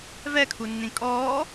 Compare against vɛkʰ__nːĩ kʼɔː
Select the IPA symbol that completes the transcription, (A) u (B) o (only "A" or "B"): A